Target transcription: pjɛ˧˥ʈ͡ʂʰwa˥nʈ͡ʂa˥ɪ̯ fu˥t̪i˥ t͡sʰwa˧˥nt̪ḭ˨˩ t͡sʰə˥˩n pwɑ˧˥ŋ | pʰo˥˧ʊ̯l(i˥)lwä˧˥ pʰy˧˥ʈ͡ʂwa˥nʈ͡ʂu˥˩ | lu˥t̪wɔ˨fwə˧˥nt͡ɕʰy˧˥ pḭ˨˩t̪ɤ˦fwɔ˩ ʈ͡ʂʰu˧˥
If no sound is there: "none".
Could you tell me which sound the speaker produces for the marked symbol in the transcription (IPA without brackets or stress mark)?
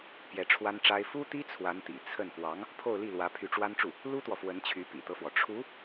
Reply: i˥˩